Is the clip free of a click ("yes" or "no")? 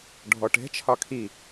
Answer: yes